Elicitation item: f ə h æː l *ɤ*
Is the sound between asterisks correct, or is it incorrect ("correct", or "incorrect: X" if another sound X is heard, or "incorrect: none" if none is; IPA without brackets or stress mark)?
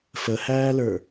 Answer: incorrect: ə˞